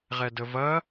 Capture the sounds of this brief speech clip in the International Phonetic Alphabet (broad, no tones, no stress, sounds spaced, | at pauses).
ʁ ɛ d ə v ɐ